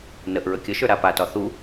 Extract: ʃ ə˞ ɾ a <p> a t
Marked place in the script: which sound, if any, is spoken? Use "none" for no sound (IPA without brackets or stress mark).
p